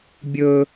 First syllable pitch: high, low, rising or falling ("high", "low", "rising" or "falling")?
high